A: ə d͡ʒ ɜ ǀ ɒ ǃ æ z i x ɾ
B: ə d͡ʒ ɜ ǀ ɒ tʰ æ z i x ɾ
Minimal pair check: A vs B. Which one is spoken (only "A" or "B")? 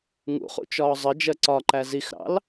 A